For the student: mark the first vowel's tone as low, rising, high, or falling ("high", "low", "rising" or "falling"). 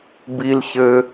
high